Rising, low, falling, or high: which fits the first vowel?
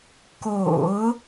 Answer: low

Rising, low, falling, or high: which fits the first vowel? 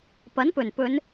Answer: rising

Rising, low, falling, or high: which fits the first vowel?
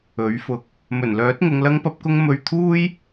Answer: rising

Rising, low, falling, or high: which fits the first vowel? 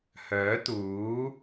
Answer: rising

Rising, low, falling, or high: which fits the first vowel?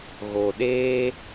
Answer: low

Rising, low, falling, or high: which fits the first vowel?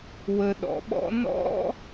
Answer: low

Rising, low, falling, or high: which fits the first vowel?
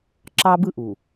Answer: high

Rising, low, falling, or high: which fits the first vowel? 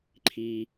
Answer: low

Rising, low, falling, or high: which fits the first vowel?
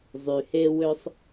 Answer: low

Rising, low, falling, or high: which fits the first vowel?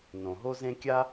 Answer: low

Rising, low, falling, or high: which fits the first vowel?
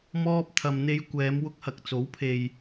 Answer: high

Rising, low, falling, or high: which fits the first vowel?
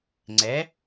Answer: rising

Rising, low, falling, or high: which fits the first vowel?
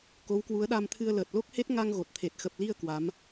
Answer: rising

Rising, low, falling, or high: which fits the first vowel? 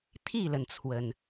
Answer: falling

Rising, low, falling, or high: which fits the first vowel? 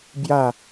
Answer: falling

